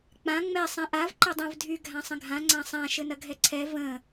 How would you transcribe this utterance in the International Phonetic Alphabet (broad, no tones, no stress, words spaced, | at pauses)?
k͡pã ŋ͡mɛ sˤɛ̃ʔav ǃədˤɛ̃vdʱy ɡʱãsˤə̃ɡʱã ŋ͡ǀãsˤã ʃɘnɐɡʱɛǀʰɛ və̃